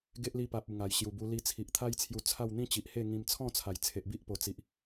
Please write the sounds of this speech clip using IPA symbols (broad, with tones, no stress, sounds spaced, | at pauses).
ɡ e˦ ʔ l i˧ p a˨ p̚ u˨˩ ŋ a˨˩ j ɕ j u˨˩ b u˧ l i˧ t͡sʰ i˨ ʔ t̪ʰ a˦ j t͡sʰ j u˧ t͡sʰ a˥˧ w n̪ ĩ˦ t͡ɕ i˨ ʔ h e˥˧ ŋ ĩ˧ m t͡sʰ ɔ̃˥˧ t͡sʰ a˨˩ j t͡sʰ e˨ ʔ b i˦ ʔ p o˨˩ t͡s i˨ ʔ